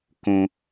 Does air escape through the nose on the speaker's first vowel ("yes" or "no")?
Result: yes